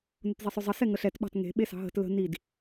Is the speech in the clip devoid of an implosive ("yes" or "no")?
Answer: no